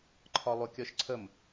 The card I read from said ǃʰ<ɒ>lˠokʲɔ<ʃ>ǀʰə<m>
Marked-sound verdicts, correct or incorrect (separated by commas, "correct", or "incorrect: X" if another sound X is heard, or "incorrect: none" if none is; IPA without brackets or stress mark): correct, correct, correct